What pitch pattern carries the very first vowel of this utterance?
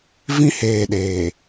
high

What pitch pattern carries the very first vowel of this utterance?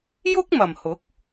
high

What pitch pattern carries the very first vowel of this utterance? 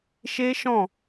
high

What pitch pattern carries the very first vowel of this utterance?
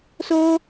high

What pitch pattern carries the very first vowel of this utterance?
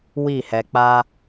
falling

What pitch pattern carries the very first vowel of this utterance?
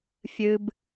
high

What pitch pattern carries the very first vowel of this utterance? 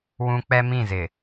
high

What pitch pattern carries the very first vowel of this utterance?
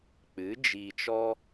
rising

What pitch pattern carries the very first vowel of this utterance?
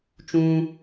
high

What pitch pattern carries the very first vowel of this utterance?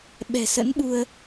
low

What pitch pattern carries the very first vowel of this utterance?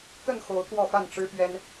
falling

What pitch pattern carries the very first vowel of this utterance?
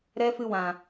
high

